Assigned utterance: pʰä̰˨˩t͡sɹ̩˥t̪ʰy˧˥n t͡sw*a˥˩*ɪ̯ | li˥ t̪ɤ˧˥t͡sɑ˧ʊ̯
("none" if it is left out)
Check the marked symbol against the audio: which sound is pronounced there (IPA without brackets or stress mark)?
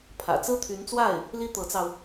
a˥˩